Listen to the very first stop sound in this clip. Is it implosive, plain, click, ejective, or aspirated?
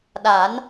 implosive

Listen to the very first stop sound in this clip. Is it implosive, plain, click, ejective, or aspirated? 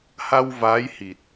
plain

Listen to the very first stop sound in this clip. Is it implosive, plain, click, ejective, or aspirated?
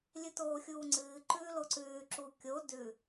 plain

